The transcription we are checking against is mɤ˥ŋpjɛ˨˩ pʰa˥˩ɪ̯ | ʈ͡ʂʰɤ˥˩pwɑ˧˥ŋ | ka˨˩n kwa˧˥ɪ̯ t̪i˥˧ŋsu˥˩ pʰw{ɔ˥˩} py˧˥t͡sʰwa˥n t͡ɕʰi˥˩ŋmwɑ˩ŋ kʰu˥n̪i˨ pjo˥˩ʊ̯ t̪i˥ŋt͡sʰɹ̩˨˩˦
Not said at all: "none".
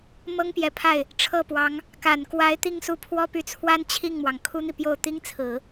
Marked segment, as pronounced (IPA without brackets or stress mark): ɔ˥